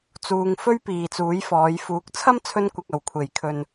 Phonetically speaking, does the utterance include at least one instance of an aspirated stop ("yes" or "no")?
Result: yes